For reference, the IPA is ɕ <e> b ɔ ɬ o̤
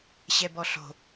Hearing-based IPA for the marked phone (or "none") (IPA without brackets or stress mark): ɛ